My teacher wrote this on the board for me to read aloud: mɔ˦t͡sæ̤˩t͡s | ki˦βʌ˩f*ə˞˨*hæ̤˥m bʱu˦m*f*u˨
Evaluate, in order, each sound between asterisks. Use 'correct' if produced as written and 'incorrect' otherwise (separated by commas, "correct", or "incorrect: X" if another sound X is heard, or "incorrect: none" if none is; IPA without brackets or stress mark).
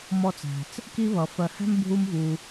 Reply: incorrect: ɜ˨, incorrect: v